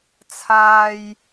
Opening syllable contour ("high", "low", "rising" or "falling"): low